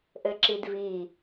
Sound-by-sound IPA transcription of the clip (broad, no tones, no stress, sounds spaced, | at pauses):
ʔ ɘ ǁ i d v i